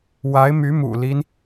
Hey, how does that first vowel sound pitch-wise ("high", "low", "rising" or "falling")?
rising